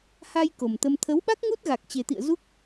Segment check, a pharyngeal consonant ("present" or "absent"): absent